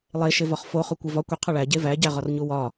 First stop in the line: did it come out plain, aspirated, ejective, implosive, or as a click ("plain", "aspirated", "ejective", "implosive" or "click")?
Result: plain